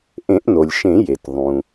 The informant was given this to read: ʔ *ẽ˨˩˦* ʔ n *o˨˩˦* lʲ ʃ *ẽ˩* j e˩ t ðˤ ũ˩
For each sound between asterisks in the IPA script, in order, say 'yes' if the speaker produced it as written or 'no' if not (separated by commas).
yes, no, no